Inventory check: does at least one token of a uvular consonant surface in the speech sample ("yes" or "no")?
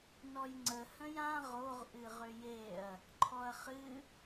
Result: yes